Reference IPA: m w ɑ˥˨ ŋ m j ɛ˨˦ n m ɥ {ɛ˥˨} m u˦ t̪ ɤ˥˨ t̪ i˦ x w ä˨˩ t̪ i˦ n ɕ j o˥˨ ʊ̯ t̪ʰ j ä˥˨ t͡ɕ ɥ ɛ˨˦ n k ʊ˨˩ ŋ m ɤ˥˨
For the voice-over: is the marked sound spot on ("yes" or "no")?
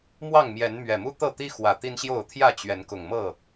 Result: no